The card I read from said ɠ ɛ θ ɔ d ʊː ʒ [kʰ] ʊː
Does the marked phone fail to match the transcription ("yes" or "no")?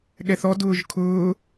no